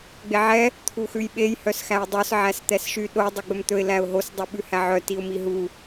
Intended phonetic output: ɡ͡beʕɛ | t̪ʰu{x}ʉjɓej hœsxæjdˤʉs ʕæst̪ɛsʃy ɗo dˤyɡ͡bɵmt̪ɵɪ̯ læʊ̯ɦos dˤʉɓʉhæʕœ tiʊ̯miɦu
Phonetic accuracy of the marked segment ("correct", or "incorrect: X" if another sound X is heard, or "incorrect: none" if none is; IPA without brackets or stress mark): correct